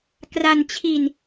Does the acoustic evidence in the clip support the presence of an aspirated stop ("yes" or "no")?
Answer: yes